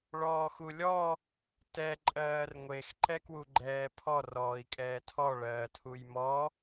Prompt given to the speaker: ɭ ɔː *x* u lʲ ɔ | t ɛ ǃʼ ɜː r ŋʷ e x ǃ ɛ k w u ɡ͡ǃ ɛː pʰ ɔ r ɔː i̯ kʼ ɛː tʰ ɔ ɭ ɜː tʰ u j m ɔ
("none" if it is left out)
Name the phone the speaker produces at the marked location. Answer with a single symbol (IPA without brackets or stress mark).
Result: x